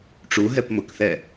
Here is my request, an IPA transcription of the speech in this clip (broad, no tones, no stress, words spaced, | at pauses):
ʈ͡ʂuɦɛp mʊkθɛ